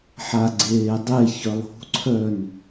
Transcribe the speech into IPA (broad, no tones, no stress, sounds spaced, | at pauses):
ħ a ɡ͡ǀ eː dˤ e ç œ lˠ ṳ ǀʰ œ n